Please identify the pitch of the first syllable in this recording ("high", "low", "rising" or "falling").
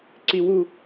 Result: high